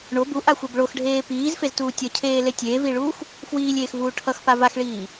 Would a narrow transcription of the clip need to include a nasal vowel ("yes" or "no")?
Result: no